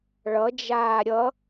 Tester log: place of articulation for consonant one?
retroflex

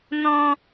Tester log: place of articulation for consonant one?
alveolar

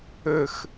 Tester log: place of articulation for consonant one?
velar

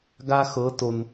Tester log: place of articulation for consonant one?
velar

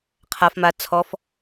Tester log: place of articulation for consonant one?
uvular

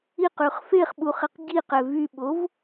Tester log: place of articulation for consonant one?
uvular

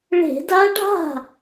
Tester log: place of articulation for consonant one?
retroflex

